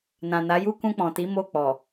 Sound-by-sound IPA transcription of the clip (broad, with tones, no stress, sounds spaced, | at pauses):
n ã˨ n a˨˦ j u˦ k ũ˧ k͡p ɔ̃˨ t i˨˦ m o˦˨ k͡p ɔ˨